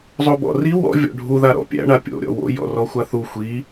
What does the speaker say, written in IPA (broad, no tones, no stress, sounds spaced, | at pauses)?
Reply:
zˤ o b ɔ̰ r i w ɔ̰ vʲ ɔ̰ ɖʱ u ð a ɾ ɔ̰ pʲ æ̰ ɳ a pʲ o̰ ɾʲ ɔ̰ w o̰ j ɔ̰ r ɔ xʷ a θ u xʷ i